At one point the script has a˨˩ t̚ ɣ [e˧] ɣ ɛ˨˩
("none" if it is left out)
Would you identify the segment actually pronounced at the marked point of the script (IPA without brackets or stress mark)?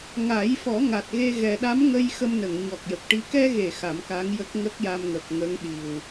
e˧